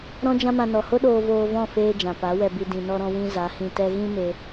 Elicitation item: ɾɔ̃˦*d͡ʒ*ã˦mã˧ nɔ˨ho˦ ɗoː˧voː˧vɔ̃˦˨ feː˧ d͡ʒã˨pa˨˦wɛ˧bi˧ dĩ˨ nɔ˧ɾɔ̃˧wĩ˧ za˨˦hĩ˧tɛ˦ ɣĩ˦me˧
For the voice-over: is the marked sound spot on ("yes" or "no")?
yes